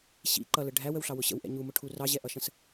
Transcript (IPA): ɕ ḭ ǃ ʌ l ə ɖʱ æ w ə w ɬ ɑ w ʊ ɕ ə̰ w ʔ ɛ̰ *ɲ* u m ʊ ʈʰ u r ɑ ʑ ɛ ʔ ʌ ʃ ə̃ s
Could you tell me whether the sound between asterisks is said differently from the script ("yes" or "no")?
no